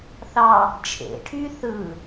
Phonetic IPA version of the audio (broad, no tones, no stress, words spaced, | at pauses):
θɑ | t͡ʃʰḛʈʰy θɯ